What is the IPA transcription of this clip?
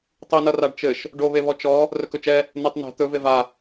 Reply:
tˤinʌ raɖt͡ʃɘʃ | ɖoβeβɔ t͡ʃɔ | rɵkɵt͡ʃɛ | netˤnɛ̤ t̪ɵve va

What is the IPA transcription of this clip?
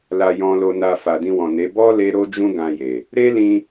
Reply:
la˧jɔ̃˧lo˧na˧ fa˨dĩ˧wɔ̃˨ne˨˦ bɔ˦ le˦ ɾo˦d͡ʒũ˦ ɡã˧je˨ | ɾe˦lĩ˧

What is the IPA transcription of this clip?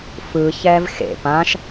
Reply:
fɯçɛːv xḛ pãʃ

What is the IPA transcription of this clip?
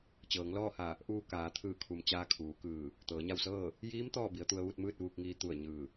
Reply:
t͡ɕɤː˩˧ŋlɔː˥˨ha˧˩ | ʔuː˧ kaː˩˧t̪ʰɯː˧˩kʰu˩m t͡ɕaː˧kʰuː˩˧kɯː˧˩ | t̪ɤː˩˧ɲa˥˨w sɤː˥˨ | jiː˧˥m t̪ɔː˥˨bi˩˧ə̯t̪u˧ə̯ ʋu˥˨t̚mɯː˥˨t̚ʋuː˧k̚ŋiː˧ t̪u˧˩ə̯ ɲɯː˧˩

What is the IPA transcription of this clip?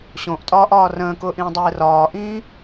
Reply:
ɕõʔtʼɒːʔɒː rə̃ːkʊːʔĩːdˤeː rɒːʔĩː

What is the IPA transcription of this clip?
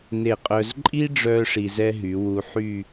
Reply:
ne˧˩qʼœ˧z ǃʼi˥ɖ͡ʐœ˧ ʂi˧zɛ˥ɦy˩˧ wu˧ħy˥˧

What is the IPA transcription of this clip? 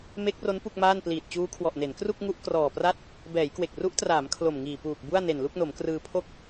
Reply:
me˦˥k̚ro˦˥n pu˥˩k̚maː˥˩n pliː˨˩t̚t͡ɕuː˦˥kʰwɔ˨˩ʔne˩˦n kru˥˩k̚ŋu˦˥ʔ krɔː˨˩pra˥˩t̚ | bɛː˩˦jkwe˨˩k̚ ru˦˥ʔtraː˩˦m kʰlo˨˩mŋiː˨˩puː˨˩k̚ bu˥˩a̯ ne˨˩nlu˥˩k̚no˩˦mkrɯː˧ pʰo˥˩k̚

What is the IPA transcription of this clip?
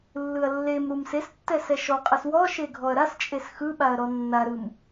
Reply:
lːɯɐ̯lːemɾum sestːɛ sɛʃɔqʼɯs wɔʃe ɡʱɔɐ̯ɾast͡ʃʼes xɯɓaɐ̯ ɾɔnːaɾɯm

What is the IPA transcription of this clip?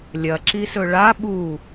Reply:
lʲɐǁisɵ ɭa ɓu

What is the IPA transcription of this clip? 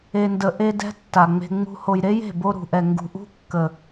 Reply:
e˧ndə˧ ʔe˦dɛ̤˦ tːa˨ŋ͡me̤˧ ŋ͡mṳ˧ ho˨jɾe˦je̤˦˨bo˧ ɾṳ˨ʔɛ˨ŋɡṳ˨ʔṳ˦ kːə˨

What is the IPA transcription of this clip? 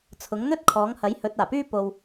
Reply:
t͡sʰʊ˨˥ŋ n̪ɵ˥t̚ kʰɔː˨˥ŋhɐ˨˥jhɵ˨˥t̚ aː˨˩pyː˥ po˧w

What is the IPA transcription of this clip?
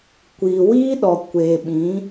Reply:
kʷiː˨wiː˦ ɗɔ˨kʷeː˨ɓĩ˨˦

